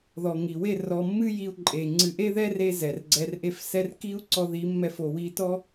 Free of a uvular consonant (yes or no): yes